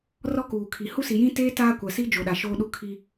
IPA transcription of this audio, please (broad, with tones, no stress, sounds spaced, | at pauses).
r ɔ˦ k uː˨ kʰ i˨ h u˦ s i˨ j ĩ˦ t eː˦ t aː˦ kʷ a˨ s i˦ d͡ʒ o˨ ɗ a˨ ʃ oː˦ ɗ u˦ kʰ i˦